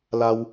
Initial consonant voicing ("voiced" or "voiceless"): voiced